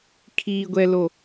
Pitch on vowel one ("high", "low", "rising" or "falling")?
low